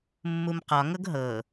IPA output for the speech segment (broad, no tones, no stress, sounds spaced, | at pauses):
mː u m q ɒ ŋ ɤ ɡ ɦ ɤ